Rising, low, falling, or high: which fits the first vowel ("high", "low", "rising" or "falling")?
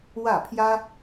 falling